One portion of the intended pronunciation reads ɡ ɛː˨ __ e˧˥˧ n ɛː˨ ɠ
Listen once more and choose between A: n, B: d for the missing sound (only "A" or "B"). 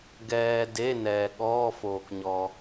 B